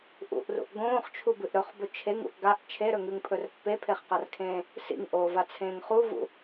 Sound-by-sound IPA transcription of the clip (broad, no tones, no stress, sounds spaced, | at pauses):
ʔ ṵ ʔ r ṵ ʔ ɡ õː χ t͡ʃʰ u b ɨ ʔ ɾ ɵ χ b ɵ t͡ʃʰ e ŋ ṵ ʔ ɡ a ʔ t͡ʃʰ e ɾ ɵ ŋ ʉ ŋ pʰ ɵ r pː e pʰ e χ q a r kʰ ẽː | s ḭ ŋ ʔ oː v a t͡sʰ ẽː ŋ χ u v ṵ